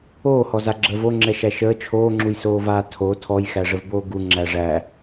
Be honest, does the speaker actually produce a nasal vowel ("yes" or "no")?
no